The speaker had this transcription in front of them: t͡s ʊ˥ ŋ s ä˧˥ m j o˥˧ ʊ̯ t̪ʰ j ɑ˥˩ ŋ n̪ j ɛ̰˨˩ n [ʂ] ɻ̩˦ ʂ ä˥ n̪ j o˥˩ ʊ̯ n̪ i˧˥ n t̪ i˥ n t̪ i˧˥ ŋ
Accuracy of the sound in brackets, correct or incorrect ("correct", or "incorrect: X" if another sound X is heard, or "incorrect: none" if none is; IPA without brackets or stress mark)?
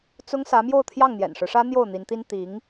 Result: correct